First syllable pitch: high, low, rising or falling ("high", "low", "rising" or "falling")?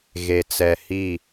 low